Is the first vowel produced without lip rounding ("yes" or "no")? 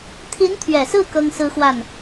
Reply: yes